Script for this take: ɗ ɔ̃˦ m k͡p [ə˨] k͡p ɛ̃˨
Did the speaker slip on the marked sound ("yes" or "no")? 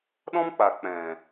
yes